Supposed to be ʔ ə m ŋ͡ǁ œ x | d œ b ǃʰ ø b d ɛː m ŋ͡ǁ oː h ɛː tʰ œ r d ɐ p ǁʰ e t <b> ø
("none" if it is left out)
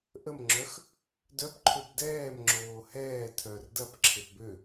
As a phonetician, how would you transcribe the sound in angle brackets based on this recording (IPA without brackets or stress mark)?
b